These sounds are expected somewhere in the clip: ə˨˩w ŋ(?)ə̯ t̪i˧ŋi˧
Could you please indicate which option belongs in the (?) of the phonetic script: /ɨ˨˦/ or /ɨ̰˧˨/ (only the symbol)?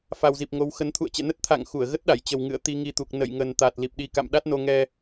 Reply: ɨ̰˧˨